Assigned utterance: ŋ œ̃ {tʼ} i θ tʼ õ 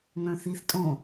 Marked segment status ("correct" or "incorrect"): incorrect